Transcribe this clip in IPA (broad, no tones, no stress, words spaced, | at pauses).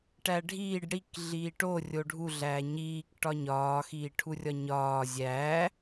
ʈæɖʱiːɖ ɽik ɮiːʈo rʲoɖʱu ɮæːɲiːk ʈɒɲɒːxiː ʈʰurʲɒɲɒː zʲæː